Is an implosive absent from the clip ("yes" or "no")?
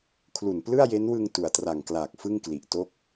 yes